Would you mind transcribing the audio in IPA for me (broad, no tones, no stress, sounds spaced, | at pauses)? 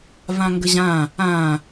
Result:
v ã ŋ ɡ ə ʑ ã | ã